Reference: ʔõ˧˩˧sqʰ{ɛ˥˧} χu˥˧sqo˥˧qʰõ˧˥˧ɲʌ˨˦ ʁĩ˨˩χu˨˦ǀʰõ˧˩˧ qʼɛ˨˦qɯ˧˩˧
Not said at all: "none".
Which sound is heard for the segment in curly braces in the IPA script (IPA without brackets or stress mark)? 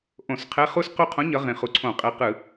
ɛ˧˥˧